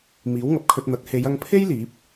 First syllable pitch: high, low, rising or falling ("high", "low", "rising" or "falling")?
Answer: rising